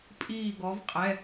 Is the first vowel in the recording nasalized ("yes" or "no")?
no